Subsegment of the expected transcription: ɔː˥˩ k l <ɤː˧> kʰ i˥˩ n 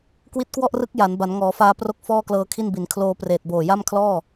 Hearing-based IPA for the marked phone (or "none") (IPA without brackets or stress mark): ɤː˧